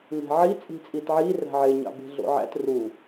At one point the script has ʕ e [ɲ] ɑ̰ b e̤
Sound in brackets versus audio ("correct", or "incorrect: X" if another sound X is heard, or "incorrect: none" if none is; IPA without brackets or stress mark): correct